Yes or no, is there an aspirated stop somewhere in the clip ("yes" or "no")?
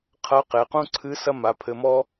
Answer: yes